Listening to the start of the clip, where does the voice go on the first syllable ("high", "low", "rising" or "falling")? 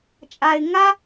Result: low